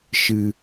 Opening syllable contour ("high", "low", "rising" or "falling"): low